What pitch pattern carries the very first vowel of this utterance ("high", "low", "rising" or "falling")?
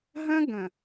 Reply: high